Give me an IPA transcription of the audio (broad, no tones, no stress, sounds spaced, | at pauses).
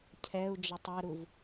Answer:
cʰ ɛ u̯ d͡ʒ ʌ tˤ ɛ ɾ u v